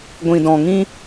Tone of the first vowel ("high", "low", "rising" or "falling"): low